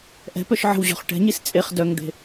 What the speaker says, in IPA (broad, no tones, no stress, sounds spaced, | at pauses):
ʔ ɛ̤ p œ ʃ ʕ ə̤ w ʑ ɔ̤ χ ʈ ɛ̤ ɲ i s t͡sʼ e χ d œ ŋ d̪ e̤